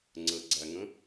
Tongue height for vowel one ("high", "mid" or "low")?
mid